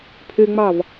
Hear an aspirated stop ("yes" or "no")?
yes